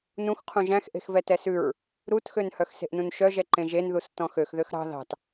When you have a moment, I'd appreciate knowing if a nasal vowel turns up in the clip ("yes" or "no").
yes